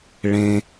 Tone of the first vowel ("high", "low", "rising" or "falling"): low